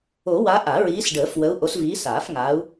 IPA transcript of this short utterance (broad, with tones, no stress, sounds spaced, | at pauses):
o˨˩˦ w a˨˦ ʔ a˨˩˦ ɹ iː˨˦ s ɖ əː˨˩˦ f w ə˨˦ u̯ ʔ o˨˦ s v iː˨˦ s aː˨˩˦ f ŋ aː˨˦ u̯